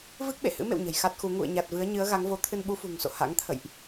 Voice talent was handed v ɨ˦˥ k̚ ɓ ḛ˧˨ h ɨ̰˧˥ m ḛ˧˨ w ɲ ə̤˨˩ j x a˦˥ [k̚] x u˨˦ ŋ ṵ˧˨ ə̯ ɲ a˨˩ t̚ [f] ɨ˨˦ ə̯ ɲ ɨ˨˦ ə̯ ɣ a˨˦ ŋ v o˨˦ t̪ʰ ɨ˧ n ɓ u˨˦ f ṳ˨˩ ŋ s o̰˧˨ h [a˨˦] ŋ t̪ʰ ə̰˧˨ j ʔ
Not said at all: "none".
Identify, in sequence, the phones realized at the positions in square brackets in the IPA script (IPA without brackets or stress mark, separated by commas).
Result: t̚, v, a̰˧˥